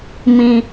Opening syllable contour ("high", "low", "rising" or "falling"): low